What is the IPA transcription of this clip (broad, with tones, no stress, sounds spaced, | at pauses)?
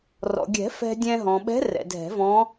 r ɔ̰˩ ɡʲ ɛ̤˨˩˦ f ɛ̤˧ dʲ ɛ̃˧ ɦ ɔ̃˩ ɓ ɛ̤˧˥ r ɛ̰˩ dʱ ɛ̤˨˩˦ v ɔ̃˧˥